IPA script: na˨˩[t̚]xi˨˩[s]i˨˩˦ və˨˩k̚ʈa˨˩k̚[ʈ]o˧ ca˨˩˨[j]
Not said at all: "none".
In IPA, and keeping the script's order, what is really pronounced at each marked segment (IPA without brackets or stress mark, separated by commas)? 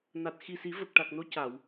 t̚, s, n, w